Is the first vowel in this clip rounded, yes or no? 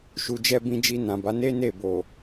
yes